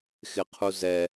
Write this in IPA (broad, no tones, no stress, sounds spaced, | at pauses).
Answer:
x ɪ qʰ u z ɛ